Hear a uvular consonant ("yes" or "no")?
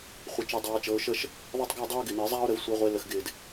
yes